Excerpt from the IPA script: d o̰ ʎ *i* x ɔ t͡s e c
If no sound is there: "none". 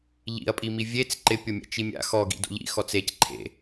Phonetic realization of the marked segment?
ḭ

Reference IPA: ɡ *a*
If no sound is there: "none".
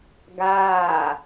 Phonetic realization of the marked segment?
aː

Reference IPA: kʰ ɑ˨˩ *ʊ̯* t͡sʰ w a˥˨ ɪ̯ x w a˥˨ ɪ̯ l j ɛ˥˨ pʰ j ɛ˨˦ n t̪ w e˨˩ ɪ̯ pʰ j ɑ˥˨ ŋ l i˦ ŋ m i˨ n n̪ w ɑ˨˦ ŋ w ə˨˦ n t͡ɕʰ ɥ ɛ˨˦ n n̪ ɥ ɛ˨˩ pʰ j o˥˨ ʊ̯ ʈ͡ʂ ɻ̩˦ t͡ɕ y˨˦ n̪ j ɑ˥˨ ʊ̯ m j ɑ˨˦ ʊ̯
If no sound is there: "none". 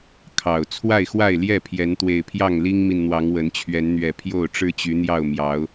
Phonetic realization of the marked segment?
ʊ̯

